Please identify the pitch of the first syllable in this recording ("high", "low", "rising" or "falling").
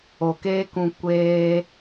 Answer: low